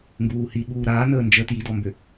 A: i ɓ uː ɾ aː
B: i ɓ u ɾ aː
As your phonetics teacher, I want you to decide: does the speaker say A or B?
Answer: A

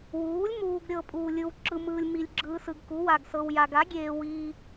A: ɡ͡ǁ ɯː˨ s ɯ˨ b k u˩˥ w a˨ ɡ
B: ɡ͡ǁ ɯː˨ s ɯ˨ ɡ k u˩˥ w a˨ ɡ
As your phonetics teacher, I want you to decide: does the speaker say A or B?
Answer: B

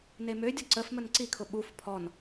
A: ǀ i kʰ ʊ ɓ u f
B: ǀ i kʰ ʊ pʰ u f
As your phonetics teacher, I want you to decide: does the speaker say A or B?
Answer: A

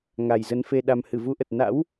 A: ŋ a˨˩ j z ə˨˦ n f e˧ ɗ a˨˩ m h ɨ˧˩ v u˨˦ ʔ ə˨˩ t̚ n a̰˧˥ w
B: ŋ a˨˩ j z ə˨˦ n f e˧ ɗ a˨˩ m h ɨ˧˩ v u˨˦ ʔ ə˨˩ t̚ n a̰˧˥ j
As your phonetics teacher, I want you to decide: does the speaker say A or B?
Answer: A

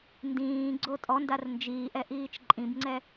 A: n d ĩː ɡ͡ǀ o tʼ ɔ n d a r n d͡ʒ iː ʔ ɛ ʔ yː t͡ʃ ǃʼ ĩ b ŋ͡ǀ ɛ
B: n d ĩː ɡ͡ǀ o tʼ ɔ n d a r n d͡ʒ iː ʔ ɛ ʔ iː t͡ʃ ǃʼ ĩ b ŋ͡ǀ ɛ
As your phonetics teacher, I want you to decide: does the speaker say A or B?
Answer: B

